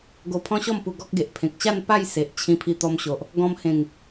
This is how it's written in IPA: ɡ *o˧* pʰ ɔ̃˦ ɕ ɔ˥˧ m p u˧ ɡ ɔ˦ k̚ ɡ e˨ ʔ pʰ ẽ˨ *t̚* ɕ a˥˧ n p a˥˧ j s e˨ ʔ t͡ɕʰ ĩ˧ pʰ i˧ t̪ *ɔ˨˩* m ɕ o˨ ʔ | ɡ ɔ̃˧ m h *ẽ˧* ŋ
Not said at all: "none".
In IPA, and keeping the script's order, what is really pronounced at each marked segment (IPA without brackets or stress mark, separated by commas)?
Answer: o˧, k̚, ɔ˧, ẽ˨˩